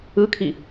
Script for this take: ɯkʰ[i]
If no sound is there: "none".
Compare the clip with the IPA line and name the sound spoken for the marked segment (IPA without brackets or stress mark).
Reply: i